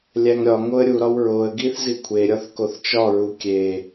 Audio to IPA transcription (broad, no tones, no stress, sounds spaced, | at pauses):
lʲ æ ŋ ɾʲ ɒ ŋ o ə̯ ɾʲ u ɾ ɒ w ɹ o ə̯ ɡ i θ z i kʷʰ e ɾʲ ɒ θ k o θ t͡ʃ ɒ ɹ u kʲ e